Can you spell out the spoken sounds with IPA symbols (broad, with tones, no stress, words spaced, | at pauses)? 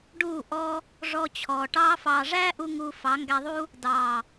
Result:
ɖuː˦˨ʔɔː˦ | ʐɔ˧t͡ɕʰɔː˨ ʈɑː˦fɑː˧ ʐæː˦ʔu˧ ŋuː˧fɑ˨˦ŋɡæ˧ðˤuː˦ | dɑː˨